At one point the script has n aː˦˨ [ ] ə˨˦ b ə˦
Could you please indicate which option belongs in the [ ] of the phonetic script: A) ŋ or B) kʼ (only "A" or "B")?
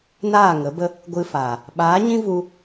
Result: A